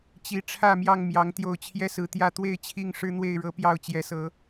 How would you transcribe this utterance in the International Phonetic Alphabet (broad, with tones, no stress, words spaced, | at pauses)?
t͡ɕi˨˦ ʈ͡ʂʰä˥˨mjɑ˥˨ŋmjɑ˨˦ŋ t̪jo˨˩ʊ̯ t͡ɕʰjɛ˦sɹ̩˨˦t̪jä˥˨ t̪we˥˨ɪ̯t͡ɕʰi˥˨ŋ ʂɻ̩˦n̪we˥˨ɪ̯ɻɤ˨˦ pjɑ˥˨ʊ̯t͡ɕjɛ˨˦sɤ˨˦